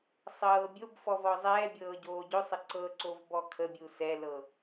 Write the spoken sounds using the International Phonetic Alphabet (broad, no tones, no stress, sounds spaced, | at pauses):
sˤ ɤː bʲ o b f ɔ v ɔ zˤ ɛː bʲ ɤː ɟ oː ɟ ɵ sˤ ə ǀ ɤ ǀ o v b ɔ kʰ ə bʲ u s ɛ l ɤ